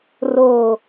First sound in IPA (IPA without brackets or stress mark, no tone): r